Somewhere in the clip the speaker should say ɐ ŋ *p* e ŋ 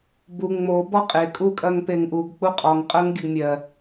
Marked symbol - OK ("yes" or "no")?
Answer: yes